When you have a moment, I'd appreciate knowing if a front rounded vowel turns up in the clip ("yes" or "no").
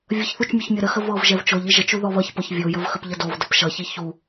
no